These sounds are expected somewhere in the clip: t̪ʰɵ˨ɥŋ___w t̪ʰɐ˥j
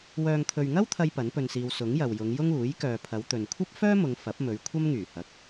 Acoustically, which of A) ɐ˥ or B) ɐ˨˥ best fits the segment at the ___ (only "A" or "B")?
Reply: A